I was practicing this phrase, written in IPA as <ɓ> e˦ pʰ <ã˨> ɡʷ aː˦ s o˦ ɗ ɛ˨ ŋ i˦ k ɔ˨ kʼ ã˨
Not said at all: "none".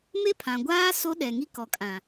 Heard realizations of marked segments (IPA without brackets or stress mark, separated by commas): m, ã˨